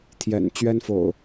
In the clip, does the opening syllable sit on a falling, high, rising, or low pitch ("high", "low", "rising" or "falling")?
low